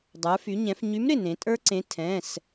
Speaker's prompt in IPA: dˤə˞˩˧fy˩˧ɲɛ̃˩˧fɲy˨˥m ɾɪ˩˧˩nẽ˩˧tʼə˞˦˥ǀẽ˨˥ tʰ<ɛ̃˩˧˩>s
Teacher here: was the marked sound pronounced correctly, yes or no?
yes